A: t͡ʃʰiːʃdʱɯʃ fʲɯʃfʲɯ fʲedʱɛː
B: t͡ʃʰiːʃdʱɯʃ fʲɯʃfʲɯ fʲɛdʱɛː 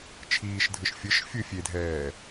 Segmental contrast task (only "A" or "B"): A